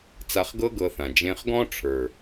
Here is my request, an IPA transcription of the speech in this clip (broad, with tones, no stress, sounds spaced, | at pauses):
t͡s a˧ χ ɡ ɤ˦ ɡ ɤ˧ θ ã˨ d͡ʒ ẽ˧ χ ɡ ɔ̃˦ ʈ͡ʂʰ ə˞˨